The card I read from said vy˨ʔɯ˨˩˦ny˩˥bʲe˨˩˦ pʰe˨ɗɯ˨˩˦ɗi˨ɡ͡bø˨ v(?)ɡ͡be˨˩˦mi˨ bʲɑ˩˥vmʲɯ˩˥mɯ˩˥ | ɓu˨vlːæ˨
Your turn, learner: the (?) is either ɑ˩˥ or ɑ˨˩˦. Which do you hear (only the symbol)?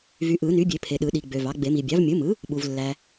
ɑ˩˥